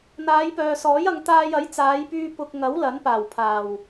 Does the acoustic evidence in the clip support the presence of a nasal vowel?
no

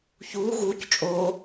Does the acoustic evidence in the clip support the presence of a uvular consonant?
no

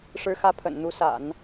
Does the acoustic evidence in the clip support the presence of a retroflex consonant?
yes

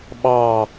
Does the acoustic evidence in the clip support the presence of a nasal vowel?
no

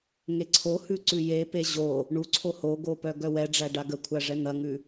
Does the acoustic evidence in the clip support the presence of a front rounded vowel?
yes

